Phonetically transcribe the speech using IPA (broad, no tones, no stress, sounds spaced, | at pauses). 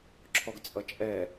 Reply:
ǁʰ ɔ ɡ t͡sʼ ʌ t͡ʃʼ ɛ